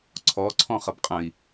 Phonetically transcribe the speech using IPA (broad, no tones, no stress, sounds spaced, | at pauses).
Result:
ǀʰ ɔ ǀʰ ɔ̃ χ ʌ b qʼ ə̃ i̯